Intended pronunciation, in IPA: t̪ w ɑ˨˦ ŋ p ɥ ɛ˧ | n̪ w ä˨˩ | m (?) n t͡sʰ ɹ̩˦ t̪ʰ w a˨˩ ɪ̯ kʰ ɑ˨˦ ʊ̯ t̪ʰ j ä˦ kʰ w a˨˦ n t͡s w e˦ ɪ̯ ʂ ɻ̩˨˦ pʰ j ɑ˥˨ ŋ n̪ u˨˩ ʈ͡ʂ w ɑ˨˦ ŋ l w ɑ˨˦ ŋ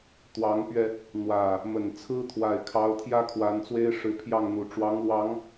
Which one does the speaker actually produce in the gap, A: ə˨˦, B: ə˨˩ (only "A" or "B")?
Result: B